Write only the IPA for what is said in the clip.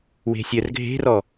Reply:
w e̤ sʲ œ r ɡʱ e̤ r ɔ

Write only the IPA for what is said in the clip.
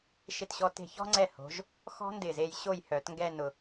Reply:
ʃ ɪ˧˩ t ɕ ɔ˧ t e̤˧˩ ç ɔ̤˥ ŋ͡ǀ ɛ˧˩ h o̤˩˧ ʒ | x ɔ̤˥ n d ɪ˧˩ z e˧ j ɕ o˥˧ j h œ˩˧ t ŋ ɡ ɛ˥˧ n ʊ˧

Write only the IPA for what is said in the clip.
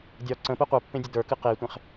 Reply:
dʲ ɒ ǀ ə̃ p ɨ qʷ ə˞ pː ẽ dʲ ə d ə˞ k ɨ q e tʷ ẽ χ

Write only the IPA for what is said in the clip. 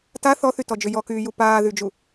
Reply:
t a θ ɔ θ y t ɔ d͡ʒ ʏ j ɔ k yː j u p aː ð y d͡ʒ u

